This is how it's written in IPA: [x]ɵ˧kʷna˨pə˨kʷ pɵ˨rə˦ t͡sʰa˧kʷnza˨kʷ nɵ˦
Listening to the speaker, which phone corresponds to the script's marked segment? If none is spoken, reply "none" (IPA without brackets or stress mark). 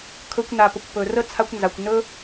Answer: kʰ